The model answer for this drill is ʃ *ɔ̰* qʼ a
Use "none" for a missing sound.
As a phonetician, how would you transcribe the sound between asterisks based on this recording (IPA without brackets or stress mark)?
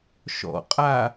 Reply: ɔ̰